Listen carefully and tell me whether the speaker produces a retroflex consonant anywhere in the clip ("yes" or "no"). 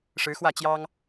yes